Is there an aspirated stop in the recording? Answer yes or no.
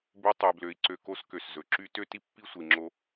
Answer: no